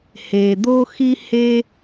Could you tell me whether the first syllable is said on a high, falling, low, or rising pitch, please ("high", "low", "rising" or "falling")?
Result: low